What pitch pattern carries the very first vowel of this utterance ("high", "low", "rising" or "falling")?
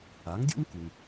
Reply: rising